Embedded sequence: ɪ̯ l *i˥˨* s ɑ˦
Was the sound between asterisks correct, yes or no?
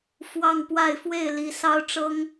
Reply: no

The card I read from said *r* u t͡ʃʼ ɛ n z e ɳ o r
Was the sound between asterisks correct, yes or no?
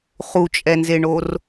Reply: no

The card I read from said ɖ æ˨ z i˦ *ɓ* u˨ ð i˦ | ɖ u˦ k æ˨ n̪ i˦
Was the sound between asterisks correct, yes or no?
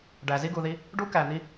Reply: no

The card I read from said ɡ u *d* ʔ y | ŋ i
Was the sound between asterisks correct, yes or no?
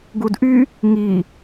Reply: yes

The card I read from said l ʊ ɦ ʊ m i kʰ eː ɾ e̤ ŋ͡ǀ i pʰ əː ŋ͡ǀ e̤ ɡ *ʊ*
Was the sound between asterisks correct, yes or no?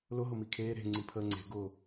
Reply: no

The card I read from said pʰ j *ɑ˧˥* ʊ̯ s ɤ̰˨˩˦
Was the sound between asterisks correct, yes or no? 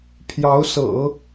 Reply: yes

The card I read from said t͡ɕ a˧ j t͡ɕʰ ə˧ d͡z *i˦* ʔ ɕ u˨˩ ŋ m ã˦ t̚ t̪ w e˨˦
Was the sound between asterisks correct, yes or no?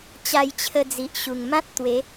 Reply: no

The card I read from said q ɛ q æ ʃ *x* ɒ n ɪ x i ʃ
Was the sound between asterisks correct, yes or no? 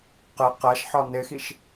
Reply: no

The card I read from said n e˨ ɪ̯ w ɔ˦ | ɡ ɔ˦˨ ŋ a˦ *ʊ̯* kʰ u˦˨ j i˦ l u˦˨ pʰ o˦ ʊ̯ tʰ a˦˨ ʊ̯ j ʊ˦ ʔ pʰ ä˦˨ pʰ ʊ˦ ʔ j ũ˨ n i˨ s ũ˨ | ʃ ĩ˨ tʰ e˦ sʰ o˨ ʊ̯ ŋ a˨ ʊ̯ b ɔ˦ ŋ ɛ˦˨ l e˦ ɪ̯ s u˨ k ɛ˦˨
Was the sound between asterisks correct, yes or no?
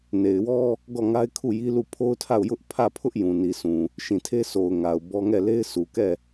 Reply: no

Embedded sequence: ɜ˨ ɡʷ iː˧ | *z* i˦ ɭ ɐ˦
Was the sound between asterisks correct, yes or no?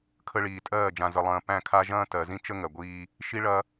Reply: no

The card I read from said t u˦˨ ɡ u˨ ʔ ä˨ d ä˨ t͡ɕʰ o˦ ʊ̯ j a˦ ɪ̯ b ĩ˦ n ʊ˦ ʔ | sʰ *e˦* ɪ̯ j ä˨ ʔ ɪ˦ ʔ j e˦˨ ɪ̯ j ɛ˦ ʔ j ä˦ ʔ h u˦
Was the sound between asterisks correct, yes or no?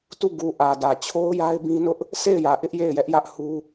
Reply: no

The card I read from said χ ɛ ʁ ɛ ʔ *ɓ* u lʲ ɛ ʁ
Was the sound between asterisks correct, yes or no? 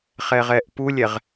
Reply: no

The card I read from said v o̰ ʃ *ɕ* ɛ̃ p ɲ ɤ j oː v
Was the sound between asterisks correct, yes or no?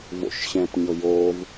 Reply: yes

